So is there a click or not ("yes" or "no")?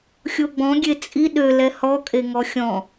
no